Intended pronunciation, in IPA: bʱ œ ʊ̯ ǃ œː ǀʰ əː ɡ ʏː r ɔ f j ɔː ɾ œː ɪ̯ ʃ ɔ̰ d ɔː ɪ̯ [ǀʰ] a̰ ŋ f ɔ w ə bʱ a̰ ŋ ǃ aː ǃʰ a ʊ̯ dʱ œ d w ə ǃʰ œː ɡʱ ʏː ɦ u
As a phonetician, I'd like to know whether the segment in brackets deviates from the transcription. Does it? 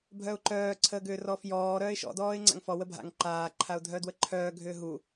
yes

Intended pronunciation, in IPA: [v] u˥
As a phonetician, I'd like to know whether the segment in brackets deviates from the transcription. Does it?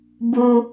yes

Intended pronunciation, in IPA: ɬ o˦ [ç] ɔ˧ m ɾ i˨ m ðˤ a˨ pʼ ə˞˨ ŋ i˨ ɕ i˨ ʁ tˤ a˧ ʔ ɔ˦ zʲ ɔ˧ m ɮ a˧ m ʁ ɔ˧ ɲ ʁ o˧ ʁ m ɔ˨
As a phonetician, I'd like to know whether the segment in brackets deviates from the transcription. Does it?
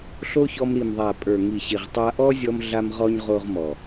no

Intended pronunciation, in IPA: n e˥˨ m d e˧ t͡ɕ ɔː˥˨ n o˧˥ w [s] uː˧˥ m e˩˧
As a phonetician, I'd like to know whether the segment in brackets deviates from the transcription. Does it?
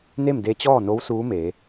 no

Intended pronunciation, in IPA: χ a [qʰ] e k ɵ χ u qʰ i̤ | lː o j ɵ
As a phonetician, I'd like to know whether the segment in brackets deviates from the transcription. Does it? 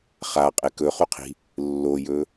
yes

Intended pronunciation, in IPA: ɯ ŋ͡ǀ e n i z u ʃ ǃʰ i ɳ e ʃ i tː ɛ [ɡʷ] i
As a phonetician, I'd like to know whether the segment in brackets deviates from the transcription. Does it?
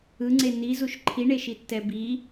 yes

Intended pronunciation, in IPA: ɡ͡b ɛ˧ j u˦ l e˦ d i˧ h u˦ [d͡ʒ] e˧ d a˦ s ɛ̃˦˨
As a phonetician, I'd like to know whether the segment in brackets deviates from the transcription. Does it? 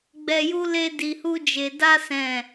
no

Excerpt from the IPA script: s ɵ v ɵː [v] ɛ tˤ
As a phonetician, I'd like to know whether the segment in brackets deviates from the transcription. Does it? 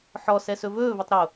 no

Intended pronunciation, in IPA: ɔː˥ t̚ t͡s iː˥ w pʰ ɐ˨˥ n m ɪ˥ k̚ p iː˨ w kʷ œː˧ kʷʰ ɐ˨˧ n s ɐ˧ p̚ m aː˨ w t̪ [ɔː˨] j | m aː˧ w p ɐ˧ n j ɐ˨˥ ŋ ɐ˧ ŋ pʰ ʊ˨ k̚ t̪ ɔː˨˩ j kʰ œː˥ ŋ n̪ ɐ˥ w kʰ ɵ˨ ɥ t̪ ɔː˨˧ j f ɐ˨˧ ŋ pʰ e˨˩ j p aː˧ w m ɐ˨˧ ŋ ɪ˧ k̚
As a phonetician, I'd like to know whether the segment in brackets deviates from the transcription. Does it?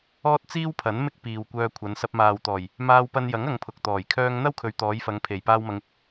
yes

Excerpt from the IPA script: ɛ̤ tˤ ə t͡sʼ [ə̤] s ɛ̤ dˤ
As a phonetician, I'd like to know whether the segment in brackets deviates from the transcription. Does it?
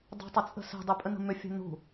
no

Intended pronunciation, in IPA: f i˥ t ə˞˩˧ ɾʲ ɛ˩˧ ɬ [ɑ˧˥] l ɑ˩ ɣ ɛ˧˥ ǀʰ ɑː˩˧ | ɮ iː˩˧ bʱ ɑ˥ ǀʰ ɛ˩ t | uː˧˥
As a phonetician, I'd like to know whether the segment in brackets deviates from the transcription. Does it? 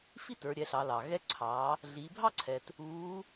yes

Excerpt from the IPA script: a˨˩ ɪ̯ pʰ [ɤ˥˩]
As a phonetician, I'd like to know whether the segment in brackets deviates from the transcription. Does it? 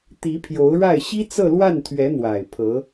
yes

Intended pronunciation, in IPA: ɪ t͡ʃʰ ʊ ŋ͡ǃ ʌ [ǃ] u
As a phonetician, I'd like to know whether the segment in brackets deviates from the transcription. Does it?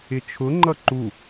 no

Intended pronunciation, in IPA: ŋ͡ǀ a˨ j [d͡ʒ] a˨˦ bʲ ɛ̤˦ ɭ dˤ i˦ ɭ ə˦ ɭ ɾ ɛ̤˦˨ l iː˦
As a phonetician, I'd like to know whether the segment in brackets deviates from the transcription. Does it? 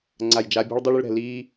no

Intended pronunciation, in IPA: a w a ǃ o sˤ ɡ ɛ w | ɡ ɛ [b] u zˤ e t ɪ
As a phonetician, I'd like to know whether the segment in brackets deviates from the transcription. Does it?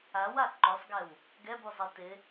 no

